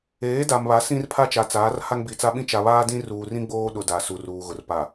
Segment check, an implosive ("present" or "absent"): present